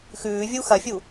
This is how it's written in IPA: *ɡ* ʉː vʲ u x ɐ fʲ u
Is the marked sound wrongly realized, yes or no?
yes